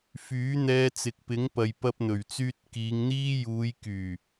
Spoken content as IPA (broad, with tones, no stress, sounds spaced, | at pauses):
f yː˨˥ n̪ ɛː˧ t͡s ɪ˨ k̚ p ɪ˨˥ ŋ p ɐ˧ j p ɐ˥ p̚ n̪ ɵ˨˩ ɥ t͡s yː˥ t̚ k iː˨˧ ŋ n̪ iː˥ j uː˨˧ j k yː˨˩